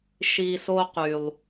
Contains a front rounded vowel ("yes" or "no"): yes